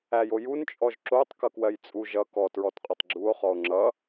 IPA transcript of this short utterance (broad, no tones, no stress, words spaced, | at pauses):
æjojun t͡ʃʼɔʒǁotˤ kʌkwɜjt͡sʼu ʒʌ kɔ tɹɔtqʼotˤɡ͡ǁuo̯ χɔo̯ŋ͡ǁʌ